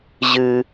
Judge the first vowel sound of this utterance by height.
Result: high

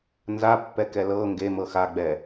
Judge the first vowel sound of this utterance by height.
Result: low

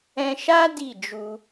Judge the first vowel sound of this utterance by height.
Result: mid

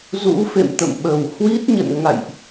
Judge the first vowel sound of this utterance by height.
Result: high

